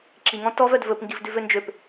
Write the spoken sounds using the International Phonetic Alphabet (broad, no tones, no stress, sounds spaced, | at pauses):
ǁ i ŋ ɔ̃ t ɔ v œ d v ɵ p ŋ ɡ i v d ʉ v ø n d͡ʒ ø p